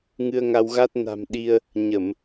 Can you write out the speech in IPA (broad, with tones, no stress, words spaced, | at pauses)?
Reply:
ŋɨ˧ə̯ŋa˧wɣa˦˥t̚ na̤˨˩m ɗi˧ə̯ | ɲə˧˩˨m